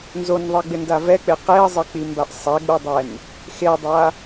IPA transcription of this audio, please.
n z o n ðˤ i ɡ͡b ɪ n d a v ɛ k͡p ɪ q e ə̯ zˤ ɪ k͡p i m b a ʔ sˤ ɛ ɡ͡b u dˤ ɛ n | x e dˤ a

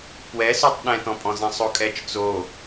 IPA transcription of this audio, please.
p w ɛ s y tˤ ɗ ɛ̃ t ɔ̃ pʼ ɔ̃ z ɛ̃ sˤ o kʼ ɛ t͡ʃ t͡s o

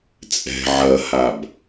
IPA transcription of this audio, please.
t͡sʼ ɛ̤ ʕ ɐ h a b

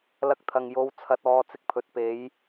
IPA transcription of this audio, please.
l ɐ˧ k̚ t̪ʰ ɐ˨ ŋ j o˨˧ w t͡sʰ ɐ˨˥ t̚ ɔː˨˧ t͡s ɪ˧ k̚ pʰ ɵ˨ t̚ p e˨˧ j

